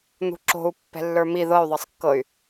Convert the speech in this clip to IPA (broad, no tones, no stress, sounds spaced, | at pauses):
n̪ ṳ ǁ o̤ u̯ pː ɛ̤ lː ə˞ m i ð ɤ y̯ ðˤ ɤ sˤ kː ɤ y̯